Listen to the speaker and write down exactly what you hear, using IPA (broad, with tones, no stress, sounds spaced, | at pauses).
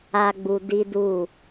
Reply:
a˦ ɡ͡b u˧ d i˦ d u˦˨